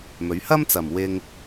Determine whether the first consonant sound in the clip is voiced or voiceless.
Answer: voiced